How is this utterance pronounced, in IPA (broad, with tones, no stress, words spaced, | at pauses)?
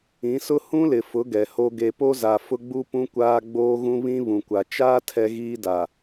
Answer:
ĩ˨˦sʊ˦ hũ˦lɪ˨fʊ˨˦ ɡɛ˨ho˦ ɡe˨po˦za˨ fʊ˦ɡ͡bu˦pũ˦ kʷaː˦ɡ͡boː˦ɣũ˦ βĩ˦ βũ˨kʷa˨ t͡ʃaː˦ tʰɛ˦ɣiː˦da˨